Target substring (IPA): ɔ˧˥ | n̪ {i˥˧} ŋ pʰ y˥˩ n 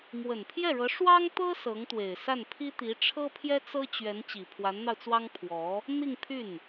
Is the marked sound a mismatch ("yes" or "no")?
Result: no